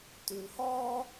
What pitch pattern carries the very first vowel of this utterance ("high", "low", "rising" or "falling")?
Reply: low